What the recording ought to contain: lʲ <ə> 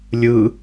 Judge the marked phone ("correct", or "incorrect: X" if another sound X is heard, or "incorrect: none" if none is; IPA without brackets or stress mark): incorrect: ɯ